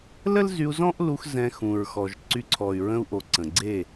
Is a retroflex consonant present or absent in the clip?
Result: absent